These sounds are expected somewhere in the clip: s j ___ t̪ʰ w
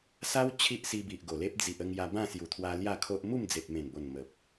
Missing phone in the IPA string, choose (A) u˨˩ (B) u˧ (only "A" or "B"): A